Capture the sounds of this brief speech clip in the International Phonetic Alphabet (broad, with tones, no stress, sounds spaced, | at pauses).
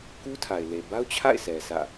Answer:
k u˦ tʰ a˨ ɪ̯ l e˨ b a˦ ʊ̯ t͡ɕʰ a̰˦˨ ɪ̯ s ɛ˨ s ä̰˦˨